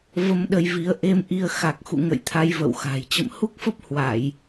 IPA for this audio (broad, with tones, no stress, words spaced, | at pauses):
və˧mɗə˧jvi˨˦ə̯ ʔe˧mʔi˧ə̯ xa˨˩k̚xṵ˧˨ŋə̰˧˨j t̪ʰa˧jvə̰˧˨wxa̤˨˩j t͡ɕə̰˧˨mhu˦˥k̚fə˦˥p̚hwa˧˩˨j